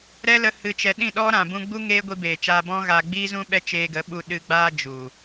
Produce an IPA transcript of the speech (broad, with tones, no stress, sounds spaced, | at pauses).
ɾ ɛ˦ l ə˧ h ɨ˨ t͡ʃ ɛ˨ ɗ ĩ˦˨ ɗ ɔ˦ ɾ ã˨ b ũ˧ ɡ͡b u˦ ŋ eː˦ ɡʷ i˧ b eː˨ t͡ʃ aː˧ b ɔ̃˦ ɣ aː˧ ɡ͡b iː˦ z ũ˦ ɓ ɛ˦ t͡ʃ eː˧ ɡ ə˨˦ ɓ u˧ ɗ ɨ˧ ɡ͡b aː˦ d͡ʒ u˨